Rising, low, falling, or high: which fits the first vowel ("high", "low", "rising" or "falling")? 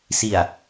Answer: low